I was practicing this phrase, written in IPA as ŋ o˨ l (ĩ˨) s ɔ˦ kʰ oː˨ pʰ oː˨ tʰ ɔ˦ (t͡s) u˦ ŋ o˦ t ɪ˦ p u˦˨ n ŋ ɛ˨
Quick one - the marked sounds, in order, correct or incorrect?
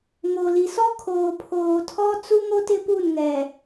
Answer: incorrect: i˨, correct

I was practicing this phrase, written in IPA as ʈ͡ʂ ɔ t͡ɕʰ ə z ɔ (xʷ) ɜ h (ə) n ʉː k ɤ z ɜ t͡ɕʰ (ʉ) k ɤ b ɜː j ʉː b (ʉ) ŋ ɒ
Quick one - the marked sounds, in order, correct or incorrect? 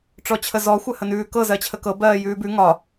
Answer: correct, correct, incorrect: ə, correct

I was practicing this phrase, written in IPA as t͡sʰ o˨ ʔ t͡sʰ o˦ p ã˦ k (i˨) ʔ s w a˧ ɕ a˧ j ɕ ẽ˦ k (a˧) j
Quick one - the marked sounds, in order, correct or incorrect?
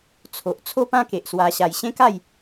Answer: incorrect: e˨, incorrect: a˥˧

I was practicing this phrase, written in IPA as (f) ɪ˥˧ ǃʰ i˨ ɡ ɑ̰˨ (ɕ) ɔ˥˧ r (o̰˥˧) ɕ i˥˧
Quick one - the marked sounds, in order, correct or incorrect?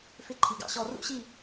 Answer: correct, correct, incorrect: ṵ˥˧

